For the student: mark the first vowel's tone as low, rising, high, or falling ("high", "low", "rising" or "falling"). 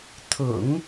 low